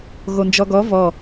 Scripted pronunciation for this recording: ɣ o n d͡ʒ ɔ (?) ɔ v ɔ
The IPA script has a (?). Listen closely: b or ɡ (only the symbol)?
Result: ɡ